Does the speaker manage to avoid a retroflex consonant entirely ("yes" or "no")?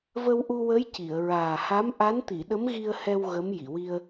yes